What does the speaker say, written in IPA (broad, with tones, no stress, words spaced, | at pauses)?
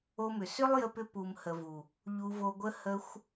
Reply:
o˧mʏ˨ sʏ˦lˠjə˧pʏ˧ pu˨mhə˨vu˨ | ʎu˧vo˧ɡʷə˦ hə˧xʷ